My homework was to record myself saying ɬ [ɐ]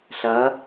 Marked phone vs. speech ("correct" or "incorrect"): correct